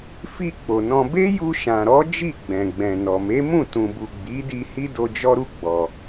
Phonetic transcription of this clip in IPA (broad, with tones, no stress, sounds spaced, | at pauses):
f i˧ k͡p o˨ n ɔ̃˧ b e˦ j u˧ ʃ ã˨ ɾ ɔ˨˦ d͡ʒ i˦˨ ɡ͡b ɛ̃˨ ɡ͡b ɛ̃˨ n ɔ˨ m e˨˦ m ũ˦˨ t ũ˨ b u˨ ɡ͡b i˨˦ d i˧ h i˦ d o˧ d͡ʒ ɔ˦ ɾ u˦˨ ɡ͡b ɔ˨